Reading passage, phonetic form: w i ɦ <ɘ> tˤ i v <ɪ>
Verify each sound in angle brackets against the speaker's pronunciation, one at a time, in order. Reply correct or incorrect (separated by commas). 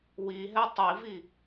incorrect, incorrect